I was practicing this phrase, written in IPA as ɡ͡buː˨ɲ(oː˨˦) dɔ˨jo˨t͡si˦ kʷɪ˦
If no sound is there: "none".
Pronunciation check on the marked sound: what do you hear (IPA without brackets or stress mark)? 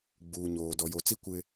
oː˨